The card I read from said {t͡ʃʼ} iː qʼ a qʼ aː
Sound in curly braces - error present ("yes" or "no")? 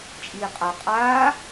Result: no